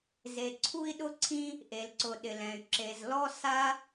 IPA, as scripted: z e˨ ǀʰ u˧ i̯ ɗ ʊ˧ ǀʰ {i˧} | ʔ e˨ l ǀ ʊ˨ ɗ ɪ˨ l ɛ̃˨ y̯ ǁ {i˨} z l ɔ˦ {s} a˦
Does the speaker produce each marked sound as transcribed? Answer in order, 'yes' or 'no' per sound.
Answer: no, no, yes

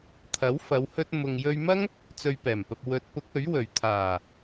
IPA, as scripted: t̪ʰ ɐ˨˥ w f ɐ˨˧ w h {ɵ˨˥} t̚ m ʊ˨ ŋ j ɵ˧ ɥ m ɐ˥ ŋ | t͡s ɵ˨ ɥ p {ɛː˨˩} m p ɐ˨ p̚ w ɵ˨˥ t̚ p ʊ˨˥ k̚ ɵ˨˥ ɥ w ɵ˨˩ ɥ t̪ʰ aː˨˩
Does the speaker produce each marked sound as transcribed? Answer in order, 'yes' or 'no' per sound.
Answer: no, yes

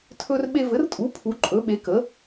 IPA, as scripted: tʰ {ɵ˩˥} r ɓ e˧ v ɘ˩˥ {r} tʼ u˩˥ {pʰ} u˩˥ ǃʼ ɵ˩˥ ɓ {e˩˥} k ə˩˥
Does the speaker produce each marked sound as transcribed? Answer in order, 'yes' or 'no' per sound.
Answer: no, yes, yes, yes

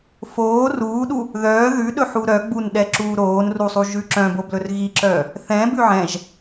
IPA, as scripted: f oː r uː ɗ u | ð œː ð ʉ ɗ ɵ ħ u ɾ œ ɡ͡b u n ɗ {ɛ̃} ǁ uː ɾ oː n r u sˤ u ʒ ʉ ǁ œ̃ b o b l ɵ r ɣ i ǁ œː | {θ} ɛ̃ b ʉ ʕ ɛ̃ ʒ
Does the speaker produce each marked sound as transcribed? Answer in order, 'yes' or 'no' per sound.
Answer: no, yes

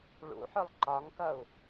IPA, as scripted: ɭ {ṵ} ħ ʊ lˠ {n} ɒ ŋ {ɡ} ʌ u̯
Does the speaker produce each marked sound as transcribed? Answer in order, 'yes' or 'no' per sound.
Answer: yes, no, no

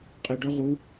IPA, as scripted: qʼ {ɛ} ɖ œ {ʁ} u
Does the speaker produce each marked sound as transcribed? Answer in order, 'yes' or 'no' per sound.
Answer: no, yes

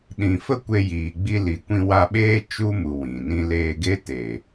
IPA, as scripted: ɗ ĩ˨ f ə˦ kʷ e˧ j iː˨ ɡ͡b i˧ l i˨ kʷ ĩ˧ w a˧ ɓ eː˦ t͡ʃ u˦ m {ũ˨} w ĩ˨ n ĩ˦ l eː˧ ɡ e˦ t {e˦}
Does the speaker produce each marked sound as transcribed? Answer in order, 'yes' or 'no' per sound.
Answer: no, no

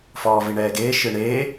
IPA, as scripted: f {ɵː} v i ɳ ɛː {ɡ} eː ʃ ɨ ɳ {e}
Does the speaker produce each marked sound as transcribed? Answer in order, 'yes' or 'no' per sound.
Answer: no, yes, no

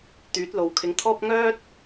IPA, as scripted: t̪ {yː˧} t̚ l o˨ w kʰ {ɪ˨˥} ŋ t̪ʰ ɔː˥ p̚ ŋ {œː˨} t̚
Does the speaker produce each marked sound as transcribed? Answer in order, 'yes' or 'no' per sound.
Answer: no, no, no

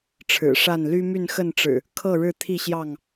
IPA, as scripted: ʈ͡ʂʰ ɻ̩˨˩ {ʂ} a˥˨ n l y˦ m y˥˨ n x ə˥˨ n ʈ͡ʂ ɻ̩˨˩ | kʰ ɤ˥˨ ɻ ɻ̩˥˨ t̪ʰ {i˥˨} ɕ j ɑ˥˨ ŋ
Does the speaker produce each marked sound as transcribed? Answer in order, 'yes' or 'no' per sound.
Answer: yes, yes

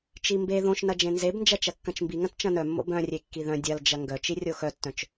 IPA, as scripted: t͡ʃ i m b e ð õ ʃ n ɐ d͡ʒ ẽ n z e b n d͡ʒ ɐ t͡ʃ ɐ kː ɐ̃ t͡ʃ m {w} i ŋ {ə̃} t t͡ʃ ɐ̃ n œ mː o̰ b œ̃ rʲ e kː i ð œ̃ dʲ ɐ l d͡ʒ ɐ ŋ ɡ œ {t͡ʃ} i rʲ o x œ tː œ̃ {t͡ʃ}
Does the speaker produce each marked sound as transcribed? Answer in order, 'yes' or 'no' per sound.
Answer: no, no, yes, yes

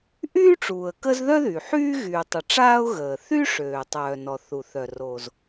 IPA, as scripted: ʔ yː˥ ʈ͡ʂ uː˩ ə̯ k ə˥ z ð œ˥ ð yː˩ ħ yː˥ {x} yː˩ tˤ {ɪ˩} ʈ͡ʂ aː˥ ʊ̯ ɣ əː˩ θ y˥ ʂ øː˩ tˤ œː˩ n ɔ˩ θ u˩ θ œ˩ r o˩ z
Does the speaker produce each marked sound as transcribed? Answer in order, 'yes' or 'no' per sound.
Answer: no, no

